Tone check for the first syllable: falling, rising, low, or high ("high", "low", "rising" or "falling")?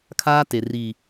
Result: high